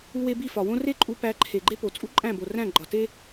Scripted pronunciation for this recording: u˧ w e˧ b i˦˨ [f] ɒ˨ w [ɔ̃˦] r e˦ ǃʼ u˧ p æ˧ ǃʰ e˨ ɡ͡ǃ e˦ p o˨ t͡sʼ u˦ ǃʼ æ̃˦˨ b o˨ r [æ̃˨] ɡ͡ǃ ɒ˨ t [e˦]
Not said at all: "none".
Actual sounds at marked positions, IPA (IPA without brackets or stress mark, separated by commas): f, õ˦, æ̃˦˨, e˦